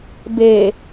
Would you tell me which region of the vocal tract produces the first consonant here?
lips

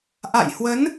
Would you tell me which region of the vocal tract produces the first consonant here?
throat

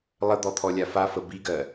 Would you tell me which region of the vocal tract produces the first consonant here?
tongue tip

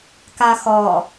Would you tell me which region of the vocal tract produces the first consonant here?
velum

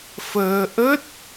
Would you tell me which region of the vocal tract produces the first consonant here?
lips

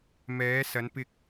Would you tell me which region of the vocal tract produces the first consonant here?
lips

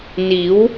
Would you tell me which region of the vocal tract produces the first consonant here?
tongue tip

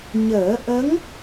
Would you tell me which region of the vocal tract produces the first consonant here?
palate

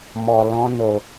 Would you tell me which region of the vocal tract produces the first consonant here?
lips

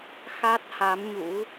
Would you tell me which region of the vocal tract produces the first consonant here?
velum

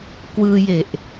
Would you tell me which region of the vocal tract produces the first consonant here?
velum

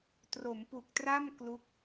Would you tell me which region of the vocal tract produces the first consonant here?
tongue tip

